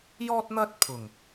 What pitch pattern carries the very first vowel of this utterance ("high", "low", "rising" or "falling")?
high